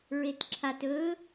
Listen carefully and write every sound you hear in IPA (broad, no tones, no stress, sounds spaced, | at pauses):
ɹ e t ǁʰ a t ɵ